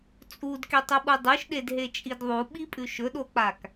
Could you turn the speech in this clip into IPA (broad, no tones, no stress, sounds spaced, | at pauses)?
t͡sʼ u d k e tˤ u ɓ u dˤ ʉ ʃ ɗ e d ɦ e t͡ʃʼ i d ðˤ u ɓ i pʼ ʉ ʃ ɵ ɗ o k͡p a k